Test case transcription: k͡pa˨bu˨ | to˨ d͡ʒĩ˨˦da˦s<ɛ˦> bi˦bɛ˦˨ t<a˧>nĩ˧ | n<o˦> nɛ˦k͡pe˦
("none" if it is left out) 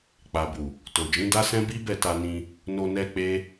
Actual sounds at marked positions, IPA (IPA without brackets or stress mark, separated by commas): ɛ̃˦, a˧, o˧